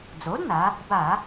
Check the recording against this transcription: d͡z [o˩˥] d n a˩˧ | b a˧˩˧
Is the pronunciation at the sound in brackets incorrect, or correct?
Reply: correct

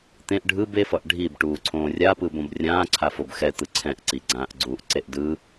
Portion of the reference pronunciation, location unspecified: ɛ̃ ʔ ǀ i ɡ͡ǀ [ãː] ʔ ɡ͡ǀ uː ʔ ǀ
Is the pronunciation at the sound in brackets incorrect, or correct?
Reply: correct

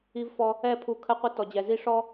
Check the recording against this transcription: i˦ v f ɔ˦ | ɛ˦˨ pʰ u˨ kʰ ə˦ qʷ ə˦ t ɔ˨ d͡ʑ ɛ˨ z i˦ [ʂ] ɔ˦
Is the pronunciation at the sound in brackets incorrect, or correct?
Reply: correct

